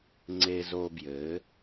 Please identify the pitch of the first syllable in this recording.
high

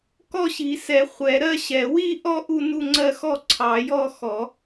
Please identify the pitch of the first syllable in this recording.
falling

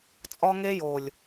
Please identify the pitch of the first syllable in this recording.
high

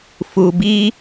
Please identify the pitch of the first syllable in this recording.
low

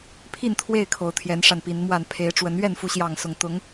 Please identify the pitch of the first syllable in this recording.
falling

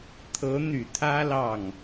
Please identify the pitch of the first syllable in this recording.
rising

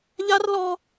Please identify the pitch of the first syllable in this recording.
high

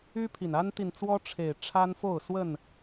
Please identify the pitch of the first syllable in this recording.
high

